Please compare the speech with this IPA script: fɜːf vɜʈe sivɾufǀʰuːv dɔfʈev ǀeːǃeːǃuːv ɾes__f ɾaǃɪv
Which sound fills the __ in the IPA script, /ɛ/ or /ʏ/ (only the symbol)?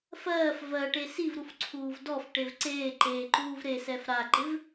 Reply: ɛ